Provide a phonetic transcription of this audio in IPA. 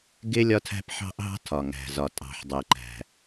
ɡ ɪ˥ lʲ ɒ˥ tʰ æ̤˥ p ħ ɑ̤˥ ʔ ɦ ɑ̤˥ tʰ ɒ˩ ŋ æ̤˩ z ɒ˩ tʼ ɑ̤˩ ħ dˤ ɪ˩ ǃ æ̤˩

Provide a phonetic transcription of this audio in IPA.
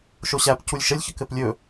ʃ o ɕ æ p c u lʲ ʃ ə lʲ ç ə k ɘ p lʲ ɵ

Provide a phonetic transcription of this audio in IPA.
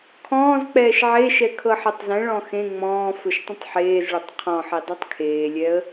kʰ ɔ̃ː z k͡p ɛː ʃ ʕ e ʃ ɛ kʰ ɤ ħ ɛ tˤ z ɛ̃ ɭ ɔ̃ x ẽ ŋ͡m ɔ̃ː f ɵ ʃ tˤ ə̃ tˤ ħ eː z ɭ ə tˤ qʰ ɔ̃ ħ i dˤ i tˤ kʰ eː lʲ ɛ ə̯

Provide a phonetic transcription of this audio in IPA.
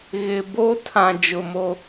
ɣ ɪ˨ b o˦ tʰ ã˨ d͡ʒ ʊ˨ m o˦

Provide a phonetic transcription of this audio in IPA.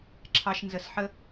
ǁʰ ɑ˧ ʃ n z ə˧ s ħ ə˦

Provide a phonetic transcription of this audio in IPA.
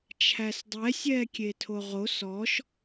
t͡ʃʰ æ s dˤ ɛ sʲ ɛː kʲ e tʰ o ʁ o s ɔ ʃ

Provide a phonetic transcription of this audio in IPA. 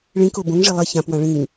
ɭ ĩ k o b õ ŋ ʐ i lˠ i ç ã p w ã ɭ ĩ ŋ

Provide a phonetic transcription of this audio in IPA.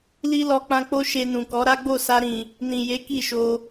l i˦ l ɔ˧ k͡p ã˧ k͡p o˦ ʃ e˧ n ũ˨ k ɔ˨˦ ɾ a˦ ɡ͡b o˦˨ s a˧ ɾ ĩ˨ | n ĩ˨ j e˨˦ k i˦˨ ʃ o˧

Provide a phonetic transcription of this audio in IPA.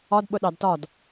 ɒ d ɓ ʊ ɗ ɑ d t ɒ d

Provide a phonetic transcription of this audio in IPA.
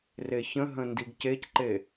r e ç ə̃ ɦ ə̃ n d i ɡ c e c ǃ e

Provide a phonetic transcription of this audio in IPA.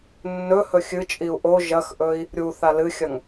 nː ɵ h ɵ xʲ ɨ t͡ʃʼ i u̯ ʔ o ʒ ɐ x ʔ ɵ i̯ | ɾʲ u θ a l ɨ xʲ ɐ ŋ

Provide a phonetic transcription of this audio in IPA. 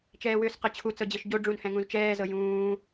t͡ʃ ɛː w ʏː s q ɤ t͡ɕʰ u t͡s ɤ d͡ʑ ɤ ʃ ɟ o ɖ͡ʐ ũ n h ɛ̃ ŋ ũ z t͡ʃ ɛː z ɤ j ũː

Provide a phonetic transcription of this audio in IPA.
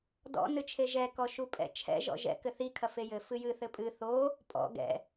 d ɔ̰ n ɨ t͡ʃʰ e ʒ ɛ k ɔ ʃ u pʼ ɛ̰ t͡ʃʰ ɛ̰ ʒ ɔ̰ ʒ ɛ̰ k ɘ θ i kʰ ɐ f e j ɘ f ɨ j ɨ θ ɘ pʼ ɨ θ o | pʼ ɔ̰ ɡ ɛ̰

